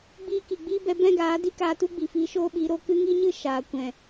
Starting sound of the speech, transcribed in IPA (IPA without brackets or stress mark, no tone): ɡ͡b